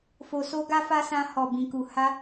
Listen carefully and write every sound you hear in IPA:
f o˧ s o˦ ɡ a˦ f a˦ s ã˧ h ɔ˨ b ĩ˨ k u˨ h a˧

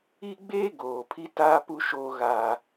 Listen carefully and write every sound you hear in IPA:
i˦ ɡ͡b eː˦ ɡ oː˨ pʰ i˦ t aː˦ p u˦ ʃ oː˦ ɣ aː˦

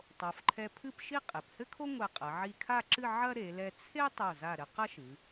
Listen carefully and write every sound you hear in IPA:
tˤ o˩˧ f ǃʰ ɛ˧ pʰ ɨ˥˧ p ʃ i˥˧ qʼ e˩˧ p h ɘ˥ kʰ o˥ ŋʷ ɛ˧˩ qʼ ɐ˩˧ ʕ i˧ kʰ a˥˧ ǁ ɨ˥˧ ʕ ɐ˥ ɾ e˩˧ l ɛ˧ t͡sʰ e˥ tˤ o˧˩ z a˧˩ ɾ ɘ˧ q ɐ˥ ʃ ɨ˩˧

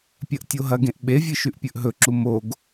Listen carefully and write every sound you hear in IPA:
pʲ ɐ ʔ tʲ o ɦ ɐ ɡ ẽ ʔ ɓ e vʲ ɨ ʃ ʉ ʔ pʲ ɵ ʔ ɦ ɵ ǁ u m o ɡ

